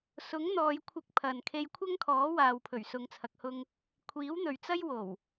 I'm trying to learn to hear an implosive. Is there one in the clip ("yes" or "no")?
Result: no